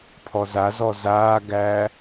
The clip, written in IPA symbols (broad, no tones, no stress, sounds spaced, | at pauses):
pʰ ɔ z a z ɔ z aː ɡ æː